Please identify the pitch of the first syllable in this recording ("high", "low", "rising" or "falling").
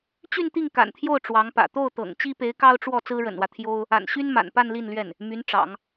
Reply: falling